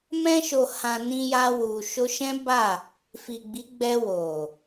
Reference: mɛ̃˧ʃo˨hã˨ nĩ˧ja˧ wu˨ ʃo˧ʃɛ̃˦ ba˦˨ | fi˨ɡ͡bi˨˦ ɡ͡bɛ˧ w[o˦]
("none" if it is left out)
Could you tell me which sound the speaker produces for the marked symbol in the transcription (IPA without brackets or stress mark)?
o˨